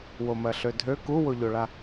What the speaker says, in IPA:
w o m ɜ ɬ ø dʱ ø k u w o ʎ o ɭ a

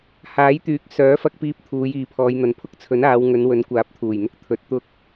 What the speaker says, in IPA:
h aː˨˥ j t̪ yː˨˥ k̚ s œː˨˥ f ɐ˧ k̚ p iː˧ p̚ t̪ʰ uː˨˧ j iː˨ pʰ ɔː˨˧ j n̪ ɐ˨˧ n pʰ ʊ˥ k̚ t͡sʰ ɵ˨˥ n aː˨˧ w ŋ ɵ˨˧ n w ɵ˨˥ n kʷ aː˨˥ p̚ t̪ʰ uː˨˩ j n̪ ʊ˥ k̚ t̪ʰ ɵ˨˥ t̚ t̪ ʊ˥ k̚

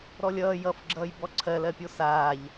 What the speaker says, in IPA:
ɾ ɔ lʲ ʌː j ʌ f ɡ͡ǁ ʌː j b ɔ ǀʰ ɜ l ɜ pʲ o s aː ʎ

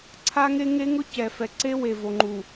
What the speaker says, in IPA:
ǀʰ a˦ ŋ e˦ ŋ e˦ ŋ ʊ˦ c ɛ˨ f ɛ˨ ǀ e˦ w e˨ v o˨ ŋ͡ǃ u˨

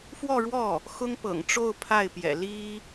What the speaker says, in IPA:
f w ɔ˥˧ ɻ w ɔ˥˩ | x ʊ˥ ŋ p ɤ̰˨˩ ŋ ʈ͡ʂ o˥˧ ʊ̯ pʰ a˥˩ ɪ̯ p j ɛ̰˨˩ l i˥

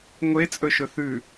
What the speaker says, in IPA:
ŋʷ e t͡sʼ ɵ ʃ ɵ θ ʉ

